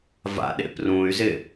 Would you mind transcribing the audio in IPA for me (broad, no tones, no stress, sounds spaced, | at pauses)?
v a̰ ɗ ḛ p r ũ y̯ z ɪ